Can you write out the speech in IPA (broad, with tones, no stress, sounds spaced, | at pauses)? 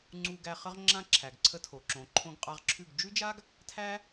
ŋ͡ǀ u˧ ɡ æ˧ χ ə˦ ʁ ŋ͡ǁ ã˧ ǁʰ æ˨ ɡ ǀʰ ə˧ tʰ o˨ ǁ õ˨ ǃʰ õ˧ ɡ qʼ a˧ ʁ ǁʰ ʉ˦˨ ɡ d͡ʒ ʉ˦ d͡ʒ a˦ ɡ | tʰ æ˦